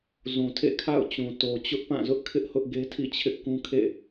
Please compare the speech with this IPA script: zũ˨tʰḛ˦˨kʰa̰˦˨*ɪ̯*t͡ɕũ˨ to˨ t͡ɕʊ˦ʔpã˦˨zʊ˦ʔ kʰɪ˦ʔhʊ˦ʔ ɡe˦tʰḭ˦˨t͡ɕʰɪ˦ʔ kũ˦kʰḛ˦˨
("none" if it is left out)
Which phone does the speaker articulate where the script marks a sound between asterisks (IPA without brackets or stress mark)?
ʊ̯